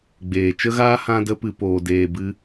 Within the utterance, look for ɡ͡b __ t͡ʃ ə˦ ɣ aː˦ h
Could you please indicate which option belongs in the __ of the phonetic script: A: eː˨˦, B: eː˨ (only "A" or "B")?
B